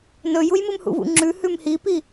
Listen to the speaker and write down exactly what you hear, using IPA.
n ɵ j u j m ɨ m h ṵ v ṵ ŋ͡ǁ ʉ h ʉ m h i p i

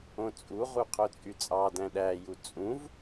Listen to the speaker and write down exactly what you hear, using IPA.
õ t͡sʼ u ʁ u qʰ o t͡sʼ y t͡sʼ ɑ d æ̃ ɗ æ j u t͡sʼ ũ v

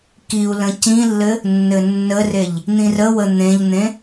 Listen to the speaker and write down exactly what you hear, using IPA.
k i u̯ l ə̃ c ĩ lː ɘ | nː ɘ nː ə r e ʎ | n̪ ĩ r ə w ə n̪ ẽ ʎ n̪ ẽ

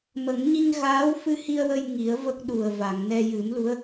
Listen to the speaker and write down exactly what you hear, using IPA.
m ə˨˩˦ ŋ ɲ i˧ ŋ ɣ aː˧˥ w f ɨ˧ h i˧ ə̯ w ə˧ j ŋ i˨˩˦ ə̯ v ə˦˥ k̚ ɗ u˨˩ ə̯ v a˨˩˨ ŋ n ɛ˧ j ɨ˨˩˦ m l u˧˥ ə̯

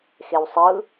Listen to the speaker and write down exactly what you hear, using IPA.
x e w sˤ ɯ

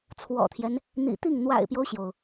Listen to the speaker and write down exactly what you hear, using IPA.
t͡sʰ w ɔ̰˨˩ t̪ʰ j ɛ˦ n | n̪ ḭ˨˩ t̪ i˥˩ ŋ n̪ w a̰˨˩ ɪ̯ p j o˦ ʊ̯ ɕ j o˩ ʊ̯

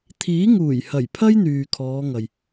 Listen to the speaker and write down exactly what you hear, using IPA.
t̪ʰ iː˨˥ ŋ uː˨˩ j h ɐ˨˩ j pʰ ɐ˥ j n̪ yː˨ kʰ ɔː˨˧ ŋ ɐ˨ j

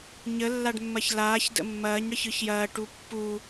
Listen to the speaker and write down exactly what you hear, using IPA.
ɲ ə lː a ɖ mː ɐ ç l aː ç d ə̰ mː ɐː ɲ ɽ ə ç ɯ ç j ɐː ʈ u pː u

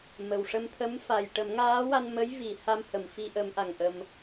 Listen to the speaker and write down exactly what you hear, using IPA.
m ə˨˩ w ʂ ə˧ m t̪ʰ ə˧˥ m f a˨˩ j ʈ ə˨˩˦ m ŋ aː˧˥ w a˧ n m ə˧˥ j v i˨˩˨ h a˧ m h ə˨˩˨ m f i˧ ʔ ə˨˩˦ m ʔ a˨˩ ŋ ʔ ə˧ m

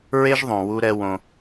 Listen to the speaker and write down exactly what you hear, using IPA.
ɹ e˦ ʒ ðˤ õ˨ w u˦ ɾ ɛ˦ w õ˧

